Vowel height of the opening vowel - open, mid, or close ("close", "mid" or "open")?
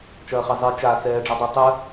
open